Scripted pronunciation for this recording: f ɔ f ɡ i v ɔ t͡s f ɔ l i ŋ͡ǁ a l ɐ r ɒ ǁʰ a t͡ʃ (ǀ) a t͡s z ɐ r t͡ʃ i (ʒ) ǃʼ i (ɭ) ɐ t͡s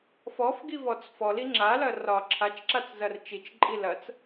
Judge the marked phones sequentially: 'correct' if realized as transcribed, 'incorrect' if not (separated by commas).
incorrect, incorrect, incorrect